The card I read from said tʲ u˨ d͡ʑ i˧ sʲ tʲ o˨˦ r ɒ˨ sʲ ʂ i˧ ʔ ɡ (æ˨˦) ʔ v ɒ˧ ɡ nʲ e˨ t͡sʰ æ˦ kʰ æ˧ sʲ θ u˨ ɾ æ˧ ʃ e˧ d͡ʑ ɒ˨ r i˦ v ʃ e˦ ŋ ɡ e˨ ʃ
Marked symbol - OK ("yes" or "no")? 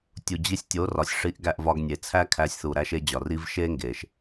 no